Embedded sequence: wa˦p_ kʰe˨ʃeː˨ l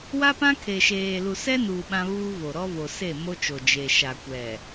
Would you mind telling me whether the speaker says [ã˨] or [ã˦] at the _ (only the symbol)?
ã˦